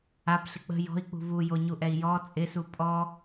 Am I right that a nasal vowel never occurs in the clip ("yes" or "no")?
yes